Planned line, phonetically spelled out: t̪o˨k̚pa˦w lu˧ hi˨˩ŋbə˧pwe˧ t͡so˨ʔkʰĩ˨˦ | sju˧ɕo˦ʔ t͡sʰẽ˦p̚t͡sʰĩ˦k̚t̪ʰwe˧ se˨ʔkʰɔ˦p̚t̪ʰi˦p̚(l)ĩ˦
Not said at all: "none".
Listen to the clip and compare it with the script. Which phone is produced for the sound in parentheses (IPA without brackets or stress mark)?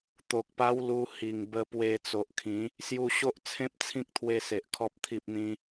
n̪